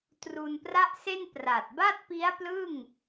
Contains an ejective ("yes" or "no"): no